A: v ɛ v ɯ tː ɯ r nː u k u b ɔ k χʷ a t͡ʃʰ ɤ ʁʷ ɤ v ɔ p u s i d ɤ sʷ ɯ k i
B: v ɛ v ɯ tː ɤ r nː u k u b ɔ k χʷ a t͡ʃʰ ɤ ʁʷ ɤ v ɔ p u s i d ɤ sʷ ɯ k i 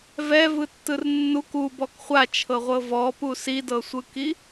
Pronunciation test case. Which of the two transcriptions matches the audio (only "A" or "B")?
A